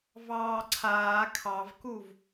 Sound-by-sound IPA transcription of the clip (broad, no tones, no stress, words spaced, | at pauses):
vɑːǀʰaː kʰɑvkuv